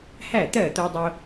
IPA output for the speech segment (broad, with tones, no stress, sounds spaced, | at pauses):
h æ˥˩ t̪ ɜ˥˩ t̪ o˧ dˤ o˧